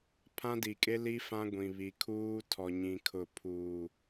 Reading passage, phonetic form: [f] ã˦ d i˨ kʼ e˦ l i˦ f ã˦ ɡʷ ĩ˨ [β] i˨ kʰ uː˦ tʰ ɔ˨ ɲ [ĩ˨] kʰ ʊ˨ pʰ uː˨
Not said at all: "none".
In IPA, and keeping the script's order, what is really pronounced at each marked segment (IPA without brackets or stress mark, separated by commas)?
pʰ, β, ĩ˨